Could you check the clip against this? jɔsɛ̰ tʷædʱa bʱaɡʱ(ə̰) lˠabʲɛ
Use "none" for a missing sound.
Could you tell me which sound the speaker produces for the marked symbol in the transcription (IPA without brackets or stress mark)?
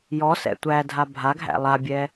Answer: æ̰